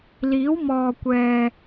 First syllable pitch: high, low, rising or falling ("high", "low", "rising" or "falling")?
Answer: rising